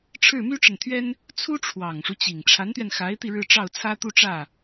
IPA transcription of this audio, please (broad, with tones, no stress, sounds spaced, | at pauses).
ʈ͡ʂʰ ɻ̩˥˩ m y˥ ʈ͡ʂ ə˨ n t̪ʰ ɥ ɛ˥ n | t͡sʰ u˥ ʈ͡ʂʰ w ɑ˨˩ ŋ ʂ u˦ t͡ɕ i˨˩ ŋ ʈ͡ʂʰ a˧˥ n t̪ ɥ ɛ˧ n x a˧˥ ɪ̯ t̪ i˧ ɻ ɻ̩˥˧ ʈ͡ʂ ɑ˥˩ ʊ̯ t͡sʰ ä˥ t̪ u˥˧ ʈ͡ʂ ä˥˩